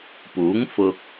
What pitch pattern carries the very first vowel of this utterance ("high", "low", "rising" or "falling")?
rising